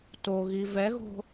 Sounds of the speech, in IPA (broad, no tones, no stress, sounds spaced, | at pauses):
t o ɣ i v ɛ ɣ o̤